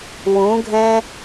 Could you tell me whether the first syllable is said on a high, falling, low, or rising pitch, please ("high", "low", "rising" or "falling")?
rising